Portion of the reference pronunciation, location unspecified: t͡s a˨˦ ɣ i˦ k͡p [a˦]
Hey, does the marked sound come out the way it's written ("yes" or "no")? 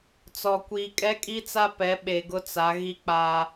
yes